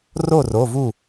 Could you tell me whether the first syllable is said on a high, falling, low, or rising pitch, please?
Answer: falling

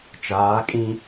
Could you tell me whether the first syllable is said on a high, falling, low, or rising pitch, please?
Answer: rising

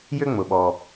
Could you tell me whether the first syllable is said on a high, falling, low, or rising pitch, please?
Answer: high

